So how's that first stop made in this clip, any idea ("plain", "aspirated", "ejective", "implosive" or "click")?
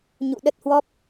implosive